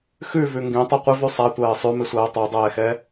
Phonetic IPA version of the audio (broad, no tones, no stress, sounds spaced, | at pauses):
x ʉ v ʉ ŋ ɡ ẽ tˤ o qʷ ɪ v ʉ sˤ a tʷ ɜː sˤ ʉ m ɪ sʷ ɜː tˤ o dˤ ɛː x ɛ